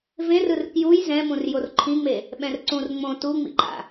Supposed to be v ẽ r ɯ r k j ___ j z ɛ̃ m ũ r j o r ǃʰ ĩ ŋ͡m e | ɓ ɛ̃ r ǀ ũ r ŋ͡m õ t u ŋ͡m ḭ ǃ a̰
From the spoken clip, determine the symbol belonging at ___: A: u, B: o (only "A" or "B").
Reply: A